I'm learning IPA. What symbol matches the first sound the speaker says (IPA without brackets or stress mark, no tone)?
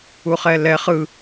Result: u